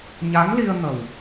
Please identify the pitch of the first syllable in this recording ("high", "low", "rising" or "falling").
rising